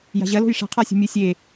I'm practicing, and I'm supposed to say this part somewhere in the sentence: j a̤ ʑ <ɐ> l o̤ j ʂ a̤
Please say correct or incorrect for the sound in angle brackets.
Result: correct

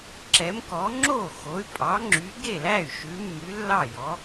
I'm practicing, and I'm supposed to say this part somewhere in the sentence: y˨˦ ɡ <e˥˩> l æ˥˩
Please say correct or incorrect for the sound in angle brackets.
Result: correct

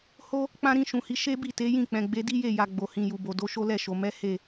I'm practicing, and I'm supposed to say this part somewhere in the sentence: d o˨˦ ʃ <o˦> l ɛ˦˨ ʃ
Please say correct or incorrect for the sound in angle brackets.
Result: correct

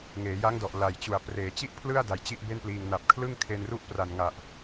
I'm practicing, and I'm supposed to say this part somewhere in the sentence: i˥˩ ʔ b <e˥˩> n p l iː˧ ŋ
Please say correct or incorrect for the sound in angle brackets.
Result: correct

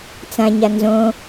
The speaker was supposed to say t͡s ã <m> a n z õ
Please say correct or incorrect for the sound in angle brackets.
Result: incorrect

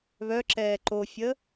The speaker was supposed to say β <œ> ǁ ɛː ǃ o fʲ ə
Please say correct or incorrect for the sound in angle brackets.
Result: correct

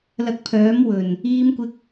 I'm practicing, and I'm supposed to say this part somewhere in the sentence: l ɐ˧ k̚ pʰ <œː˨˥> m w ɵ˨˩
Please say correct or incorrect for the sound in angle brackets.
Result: correct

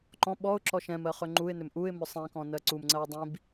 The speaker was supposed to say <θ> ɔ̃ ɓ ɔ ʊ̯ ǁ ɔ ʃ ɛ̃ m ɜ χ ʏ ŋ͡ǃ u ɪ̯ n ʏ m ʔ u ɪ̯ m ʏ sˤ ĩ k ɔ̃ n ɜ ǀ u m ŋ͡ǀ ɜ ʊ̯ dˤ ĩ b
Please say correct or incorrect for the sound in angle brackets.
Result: incorrect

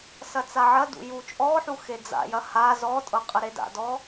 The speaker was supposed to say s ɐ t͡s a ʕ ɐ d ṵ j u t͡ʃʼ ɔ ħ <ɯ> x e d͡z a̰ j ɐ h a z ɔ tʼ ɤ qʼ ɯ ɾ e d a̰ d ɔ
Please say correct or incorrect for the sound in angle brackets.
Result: incorrect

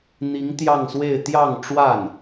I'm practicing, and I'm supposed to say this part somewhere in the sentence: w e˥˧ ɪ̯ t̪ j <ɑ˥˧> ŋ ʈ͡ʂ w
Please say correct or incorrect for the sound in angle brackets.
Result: correct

